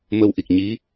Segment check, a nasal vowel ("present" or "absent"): absent